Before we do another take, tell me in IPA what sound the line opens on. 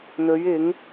n̪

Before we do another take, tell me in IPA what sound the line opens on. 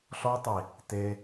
ɬ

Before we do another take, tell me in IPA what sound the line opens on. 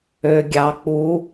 ø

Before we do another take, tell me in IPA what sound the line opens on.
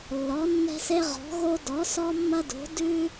lː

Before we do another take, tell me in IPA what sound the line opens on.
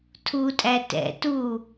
tʰ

